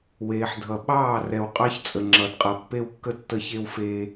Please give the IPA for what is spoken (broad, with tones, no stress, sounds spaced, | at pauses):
w eː˨ ħ dʱ ʌ˨ ɓ ɑː˦˨ r ɛ˨ w qʼ ɑ˦ ç t͡sʼ ə˨ ŋ͡ǁ ʌ˨ d qʼ ʌ˨ pː e˦ w kː ə˦ tː ə˦ ç e˦ w f eː˦